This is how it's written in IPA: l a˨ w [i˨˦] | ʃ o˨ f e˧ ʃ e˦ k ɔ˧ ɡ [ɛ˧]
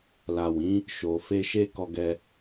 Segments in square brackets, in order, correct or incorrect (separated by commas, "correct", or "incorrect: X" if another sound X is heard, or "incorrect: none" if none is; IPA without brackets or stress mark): incorrect: ĩ˨˦, correct